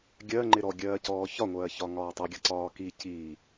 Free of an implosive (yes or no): yes